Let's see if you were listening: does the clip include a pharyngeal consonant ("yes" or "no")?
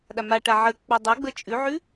yes